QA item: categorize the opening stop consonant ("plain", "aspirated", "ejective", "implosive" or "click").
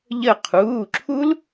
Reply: aspirated